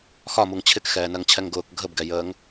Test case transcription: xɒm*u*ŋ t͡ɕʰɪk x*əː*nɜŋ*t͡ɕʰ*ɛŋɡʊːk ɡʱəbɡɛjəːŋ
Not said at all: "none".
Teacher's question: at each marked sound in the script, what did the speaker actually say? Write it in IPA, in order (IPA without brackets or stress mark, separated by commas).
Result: u, ɛː, t͡ɕʰ